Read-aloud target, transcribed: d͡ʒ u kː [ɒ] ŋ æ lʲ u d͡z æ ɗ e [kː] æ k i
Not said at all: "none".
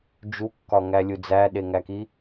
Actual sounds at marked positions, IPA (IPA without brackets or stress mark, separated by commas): ɒ, ŋ